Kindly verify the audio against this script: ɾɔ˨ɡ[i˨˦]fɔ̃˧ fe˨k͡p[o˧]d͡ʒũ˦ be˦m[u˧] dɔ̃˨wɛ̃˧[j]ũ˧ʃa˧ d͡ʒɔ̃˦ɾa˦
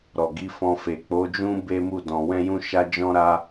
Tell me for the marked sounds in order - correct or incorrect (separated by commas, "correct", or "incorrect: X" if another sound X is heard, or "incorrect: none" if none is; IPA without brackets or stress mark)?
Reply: correct, incorrect: o˨˦, incorrect: u˦˨, correct